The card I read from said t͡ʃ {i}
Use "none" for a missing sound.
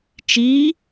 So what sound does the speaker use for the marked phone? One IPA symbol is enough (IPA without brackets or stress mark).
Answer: i